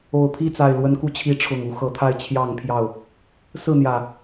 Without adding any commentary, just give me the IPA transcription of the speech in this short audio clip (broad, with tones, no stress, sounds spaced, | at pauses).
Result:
o˨˩ ʊ̯ pʰ i˥˨ t͡s a˨˩ ɪ̯ l w ə˨˦ n k u˨˦ t͡ɕʰ i˨˦ ʈ͡ʂʰ ʊ˨˩ ŋ u˨˦ x ɤ˨˦ t̪ʰ a˦ ɪ̯ t͡ɕʰ j ɑ˥˨ ŋ pʰ j ɑ˥˨ ʊ̯ | s ɹ̩˥˨ n̪ j ä˨˩